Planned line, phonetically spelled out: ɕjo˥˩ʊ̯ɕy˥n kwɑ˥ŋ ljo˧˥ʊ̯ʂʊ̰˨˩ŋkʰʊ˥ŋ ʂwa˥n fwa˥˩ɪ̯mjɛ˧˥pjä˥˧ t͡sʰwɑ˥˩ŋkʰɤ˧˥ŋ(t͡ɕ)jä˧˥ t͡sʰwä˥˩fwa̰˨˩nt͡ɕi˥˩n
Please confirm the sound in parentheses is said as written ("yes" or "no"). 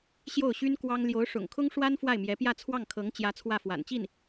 yes